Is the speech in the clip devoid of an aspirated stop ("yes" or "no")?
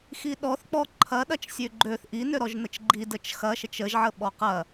no